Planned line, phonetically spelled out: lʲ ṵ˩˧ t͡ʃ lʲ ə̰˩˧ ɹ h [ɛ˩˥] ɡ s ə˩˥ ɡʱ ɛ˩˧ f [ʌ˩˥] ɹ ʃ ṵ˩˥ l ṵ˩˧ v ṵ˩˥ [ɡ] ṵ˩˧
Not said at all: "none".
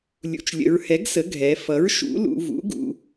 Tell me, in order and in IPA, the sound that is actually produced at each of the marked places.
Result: ɛ˩˥, ʌ˩˥, ɡ

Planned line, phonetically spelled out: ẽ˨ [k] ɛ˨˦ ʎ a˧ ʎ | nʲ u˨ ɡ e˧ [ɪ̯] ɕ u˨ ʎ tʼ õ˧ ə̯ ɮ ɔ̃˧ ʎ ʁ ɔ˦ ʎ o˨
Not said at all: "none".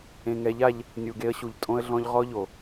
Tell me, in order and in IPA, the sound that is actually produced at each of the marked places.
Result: ŋ, ə̯

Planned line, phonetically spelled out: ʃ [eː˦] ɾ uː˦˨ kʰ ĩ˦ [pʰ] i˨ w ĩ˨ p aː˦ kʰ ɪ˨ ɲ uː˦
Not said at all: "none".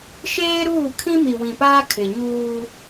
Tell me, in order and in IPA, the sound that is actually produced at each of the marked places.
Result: eː˦, m

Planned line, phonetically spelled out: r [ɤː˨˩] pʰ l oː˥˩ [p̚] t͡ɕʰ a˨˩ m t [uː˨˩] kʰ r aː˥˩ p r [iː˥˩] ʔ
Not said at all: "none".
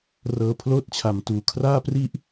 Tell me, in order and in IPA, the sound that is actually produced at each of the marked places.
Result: ɤː˧, t̚, uː˨˩, i˥˩

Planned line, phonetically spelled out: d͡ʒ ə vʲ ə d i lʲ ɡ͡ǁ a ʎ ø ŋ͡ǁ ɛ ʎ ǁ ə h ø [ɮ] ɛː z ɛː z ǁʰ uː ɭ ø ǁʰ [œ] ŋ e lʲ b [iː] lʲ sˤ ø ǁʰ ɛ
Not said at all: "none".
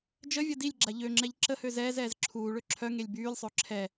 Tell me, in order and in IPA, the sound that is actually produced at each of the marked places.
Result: z, œ, yː

